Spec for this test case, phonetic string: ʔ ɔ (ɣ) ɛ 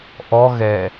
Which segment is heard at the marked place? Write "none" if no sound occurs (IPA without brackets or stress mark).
ɣ